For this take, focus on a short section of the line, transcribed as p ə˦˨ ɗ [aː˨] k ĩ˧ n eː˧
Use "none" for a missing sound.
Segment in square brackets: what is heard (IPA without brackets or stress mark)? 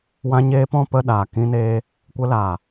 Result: aː˨